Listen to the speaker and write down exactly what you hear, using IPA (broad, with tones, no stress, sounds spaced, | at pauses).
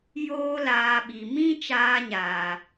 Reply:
j oː˦ l aː˧ ɓ i˨ m ĩ˦ t͡ʃ aː˧ ɲ aː˨